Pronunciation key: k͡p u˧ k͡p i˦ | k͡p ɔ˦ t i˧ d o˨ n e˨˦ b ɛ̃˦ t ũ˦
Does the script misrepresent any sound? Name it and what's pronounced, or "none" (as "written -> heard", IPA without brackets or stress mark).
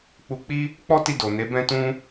none